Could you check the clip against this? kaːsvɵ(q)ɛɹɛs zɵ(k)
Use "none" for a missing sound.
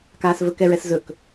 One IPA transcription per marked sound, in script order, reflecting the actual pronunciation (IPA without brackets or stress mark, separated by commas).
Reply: k, k